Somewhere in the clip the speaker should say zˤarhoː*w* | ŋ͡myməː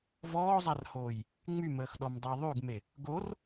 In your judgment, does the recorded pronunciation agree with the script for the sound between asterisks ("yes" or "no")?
no